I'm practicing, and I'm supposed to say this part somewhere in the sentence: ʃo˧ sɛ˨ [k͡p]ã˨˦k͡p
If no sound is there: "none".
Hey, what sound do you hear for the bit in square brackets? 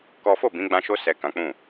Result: k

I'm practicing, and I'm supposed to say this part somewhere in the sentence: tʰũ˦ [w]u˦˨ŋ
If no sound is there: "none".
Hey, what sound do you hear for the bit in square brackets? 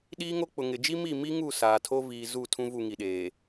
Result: v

